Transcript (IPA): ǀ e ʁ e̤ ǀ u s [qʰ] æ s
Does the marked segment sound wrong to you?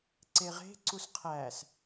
no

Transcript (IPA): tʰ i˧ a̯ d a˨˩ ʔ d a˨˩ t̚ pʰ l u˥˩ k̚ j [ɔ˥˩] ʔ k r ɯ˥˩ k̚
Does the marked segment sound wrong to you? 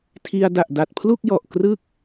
yes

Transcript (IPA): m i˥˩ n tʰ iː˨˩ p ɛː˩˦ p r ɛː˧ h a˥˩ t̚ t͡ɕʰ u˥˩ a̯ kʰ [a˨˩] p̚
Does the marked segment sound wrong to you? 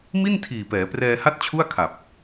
no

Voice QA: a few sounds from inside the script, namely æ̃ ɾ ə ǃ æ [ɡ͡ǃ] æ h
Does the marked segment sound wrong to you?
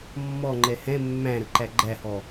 no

